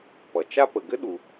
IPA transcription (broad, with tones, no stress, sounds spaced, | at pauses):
p ʌ˩ t͡ʃ a˥ p ə˩ ɡ ɘ˥ ɗ u˩